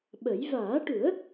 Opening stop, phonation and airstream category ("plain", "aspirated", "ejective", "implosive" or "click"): implosive